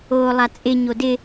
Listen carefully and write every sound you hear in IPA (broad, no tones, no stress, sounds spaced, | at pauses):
oː lˠ a t͡sʼ ɪ ɲ o d ɪ